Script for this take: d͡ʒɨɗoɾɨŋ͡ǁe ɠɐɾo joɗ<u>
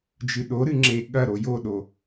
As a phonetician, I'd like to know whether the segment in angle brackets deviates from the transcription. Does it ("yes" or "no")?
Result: yes